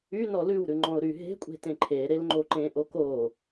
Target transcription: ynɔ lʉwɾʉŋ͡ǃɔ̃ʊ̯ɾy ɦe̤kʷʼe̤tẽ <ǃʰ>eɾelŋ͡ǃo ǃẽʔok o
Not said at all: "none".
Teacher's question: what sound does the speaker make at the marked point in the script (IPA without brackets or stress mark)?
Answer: ǃʰ